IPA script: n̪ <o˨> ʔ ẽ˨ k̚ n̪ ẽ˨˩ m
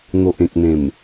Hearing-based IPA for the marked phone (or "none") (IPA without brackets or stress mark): o˨